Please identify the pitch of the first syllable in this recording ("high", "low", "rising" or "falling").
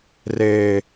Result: high